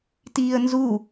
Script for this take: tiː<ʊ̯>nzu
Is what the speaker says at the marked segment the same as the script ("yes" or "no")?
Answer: no